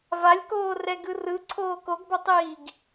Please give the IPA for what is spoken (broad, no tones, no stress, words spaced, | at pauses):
valʲkoː rɛɡɯrɯ ǀʰoːkoɡbʌtˤiːɡ